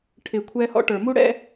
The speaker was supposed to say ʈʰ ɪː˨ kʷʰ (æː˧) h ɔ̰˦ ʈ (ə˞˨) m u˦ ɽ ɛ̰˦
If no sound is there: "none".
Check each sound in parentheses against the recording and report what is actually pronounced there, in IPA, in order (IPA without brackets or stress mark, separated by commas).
ɛː˧, ə˞˨